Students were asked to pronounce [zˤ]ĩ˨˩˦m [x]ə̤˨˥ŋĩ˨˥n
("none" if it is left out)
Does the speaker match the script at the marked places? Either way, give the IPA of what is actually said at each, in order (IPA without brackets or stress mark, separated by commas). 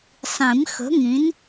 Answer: sˤ, x